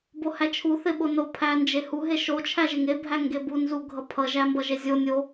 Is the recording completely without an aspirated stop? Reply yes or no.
no